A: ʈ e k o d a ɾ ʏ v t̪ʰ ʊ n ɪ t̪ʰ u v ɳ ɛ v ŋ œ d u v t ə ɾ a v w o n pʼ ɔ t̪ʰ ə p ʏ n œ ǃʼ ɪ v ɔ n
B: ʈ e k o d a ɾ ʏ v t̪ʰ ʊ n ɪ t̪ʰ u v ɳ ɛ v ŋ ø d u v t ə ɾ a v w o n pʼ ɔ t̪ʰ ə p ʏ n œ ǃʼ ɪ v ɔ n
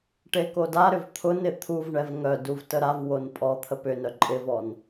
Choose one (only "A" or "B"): A